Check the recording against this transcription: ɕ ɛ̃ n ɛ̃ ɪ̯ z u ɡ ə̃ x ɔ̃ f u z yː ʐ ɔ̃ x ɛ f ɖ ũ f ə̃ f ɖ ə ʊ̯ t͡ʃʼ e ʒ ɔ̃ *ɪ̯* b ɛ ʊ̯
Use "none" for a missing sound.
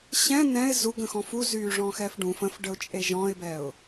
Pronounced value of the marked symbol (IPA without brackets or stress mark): ɪ̯